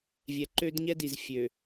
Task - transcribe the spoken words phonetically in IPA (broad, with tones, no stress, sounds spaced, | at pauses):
vʲ ɛ˨ ǃ ø˦ d ɲ ɛ˦ d i˨ z fʲ ø˨